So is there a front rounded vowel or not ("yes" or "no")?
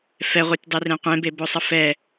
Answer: no